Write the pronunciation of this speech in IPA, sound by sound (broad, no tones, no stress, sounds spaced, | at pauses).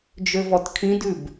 d͡ʒ ø v ɔ t kʰ ĩ d ʉ b